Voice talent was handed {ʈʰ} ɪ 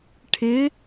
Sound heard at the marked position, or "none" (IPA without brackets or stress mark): ʈʰ